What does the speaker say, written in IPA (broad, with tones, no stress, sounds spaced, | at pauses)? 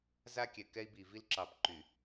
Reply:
z a˦ kʲ ɛ˨ k ɛ˦ i̯ b i˨ v i˦ l ǁ ɑ˨ p ǃ y˨